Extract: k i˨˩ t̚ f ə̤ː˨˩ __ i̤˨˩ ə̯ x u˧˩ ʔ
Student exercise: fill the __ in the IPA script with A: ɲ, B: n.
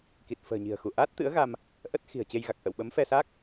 A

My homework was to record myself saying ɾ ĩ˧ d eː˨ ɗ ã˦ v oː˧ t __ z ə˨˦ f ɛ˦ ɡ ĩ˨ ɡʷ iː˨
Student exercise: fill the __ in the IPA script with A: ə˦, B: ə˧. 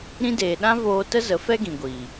A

